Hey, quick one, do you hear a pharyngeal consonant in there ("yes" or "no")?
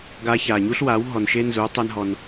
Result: no